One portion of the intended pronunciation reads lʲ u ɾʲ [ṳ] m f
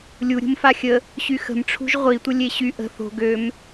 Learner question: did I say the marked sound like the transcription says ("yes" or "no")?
yes